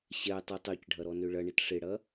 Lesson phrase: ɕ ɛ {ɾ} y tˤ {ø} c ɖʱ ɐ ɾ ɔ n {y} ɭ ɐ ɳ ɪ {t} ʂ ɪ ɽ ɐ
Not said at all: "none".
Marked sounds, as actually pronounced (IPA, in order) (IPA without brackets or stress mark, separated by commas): tˤ, ø, ø, t